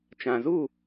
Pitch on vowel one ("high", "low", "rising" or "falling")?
low